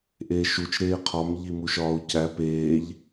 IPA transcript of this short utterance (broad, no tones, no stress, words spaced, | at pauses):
ʔeːʃut͡ʃ ɾeːqʰɒm ʎimuʃɒːu̯cæ peːʎ